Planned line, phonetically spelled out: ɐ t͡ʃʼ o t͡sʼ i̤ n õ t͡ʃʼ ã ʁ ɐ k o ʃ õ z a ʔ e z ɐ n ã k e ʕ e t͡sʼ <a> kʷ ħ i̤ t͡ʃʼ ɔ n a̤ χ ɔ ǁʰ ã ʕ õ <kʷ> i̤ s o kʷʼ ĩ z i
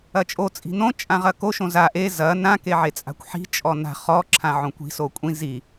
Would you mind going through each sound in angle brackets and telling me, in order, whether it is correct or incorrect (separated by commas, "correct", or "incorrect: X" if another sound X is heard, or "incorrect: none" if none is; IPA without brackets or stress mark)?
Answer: incorrect: a̤, correct